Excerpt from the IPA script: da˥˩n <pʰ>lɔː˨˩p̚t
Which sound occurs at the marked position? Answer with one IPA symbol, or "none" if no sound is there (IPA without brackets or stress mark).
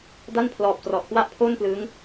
pʰ